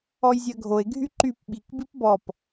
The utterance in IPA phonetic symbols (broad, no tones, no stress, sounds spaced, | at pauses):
ɔ j zʲ ɜ ɡʱ o e̯ ɡʱ y ǃ y p ɓ i k b i p b ɔ p